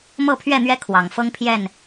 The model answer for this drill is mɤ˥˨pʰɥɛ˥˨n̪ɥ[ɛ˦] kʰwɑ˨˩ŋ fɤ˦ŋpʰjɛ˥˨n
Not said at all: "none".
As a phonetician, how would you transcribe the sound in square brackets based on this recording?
ɛ˦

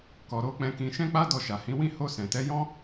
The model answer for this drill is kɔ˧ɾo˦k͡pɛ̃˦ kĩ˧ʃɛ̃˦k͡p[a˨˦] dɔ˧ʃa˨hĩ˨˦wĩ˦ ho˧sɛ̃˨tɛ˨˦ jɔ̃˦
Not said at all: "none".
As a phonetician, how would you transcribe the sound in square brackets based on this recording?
a˦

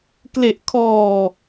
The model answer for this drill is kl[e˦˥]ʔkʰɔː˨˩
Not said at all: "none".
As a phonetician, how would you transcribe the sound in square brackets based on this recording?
e˨˩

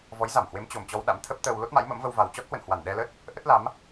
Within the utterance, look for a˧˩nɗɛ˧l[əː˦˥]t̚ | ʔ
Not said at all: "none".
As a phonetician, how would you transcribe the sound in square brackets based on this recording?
ə˦˥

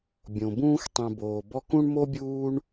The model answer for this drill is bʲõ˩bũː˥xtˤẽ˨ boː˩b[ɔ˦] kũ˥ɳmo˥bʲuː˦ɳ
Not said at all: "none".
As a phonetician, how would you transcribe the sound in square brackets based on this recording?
ɔ˦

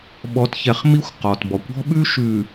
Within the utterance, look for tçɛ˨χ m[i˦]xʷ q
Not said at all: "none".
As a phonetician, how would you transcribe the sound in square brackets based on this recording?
i˦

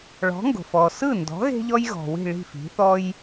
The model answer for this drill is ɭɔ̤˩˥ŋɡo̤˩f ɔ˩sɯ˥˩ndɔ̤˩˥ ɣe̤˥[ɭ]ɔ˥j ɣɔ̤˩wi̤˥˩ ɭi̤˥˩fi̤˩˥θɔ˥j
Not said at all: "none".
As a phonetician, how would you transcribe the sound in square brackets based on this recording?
ʎ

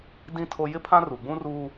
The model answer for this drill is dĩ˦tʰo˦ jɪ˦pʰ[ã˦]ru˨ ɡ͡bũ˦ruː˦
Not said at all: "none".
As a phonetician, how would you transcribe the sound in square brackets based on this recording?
ã˦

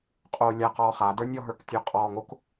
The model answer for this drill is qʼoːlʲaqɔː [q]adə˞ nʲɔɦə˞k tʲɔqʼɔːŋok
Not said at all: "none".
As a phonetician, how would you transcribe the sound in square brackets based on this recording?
χ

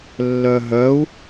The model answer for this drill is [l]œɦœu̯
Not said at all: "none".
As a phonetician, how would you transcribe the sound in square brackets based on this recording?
lː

